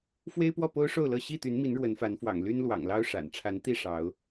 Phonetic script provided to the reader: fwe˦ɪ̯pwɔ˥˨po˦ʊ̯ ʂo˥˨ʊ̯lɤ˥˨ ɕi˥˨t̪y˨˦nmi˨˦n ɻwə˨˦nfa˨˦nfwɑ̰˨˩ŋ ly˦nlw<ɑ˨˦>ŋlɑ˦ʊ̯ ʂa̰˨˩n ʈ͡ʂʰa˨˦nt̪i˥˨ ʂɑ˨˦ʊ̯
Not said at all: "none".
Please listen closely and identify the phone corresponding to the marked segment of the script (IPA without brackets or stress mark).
ɑ̰˨˩